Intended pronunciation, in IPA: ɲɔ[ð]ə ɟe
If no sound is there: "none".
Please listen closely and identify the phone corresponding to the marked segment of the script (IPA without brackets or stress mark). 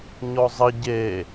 zˤ